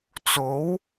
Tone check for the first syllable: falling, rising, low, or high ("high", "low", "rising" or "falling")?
rising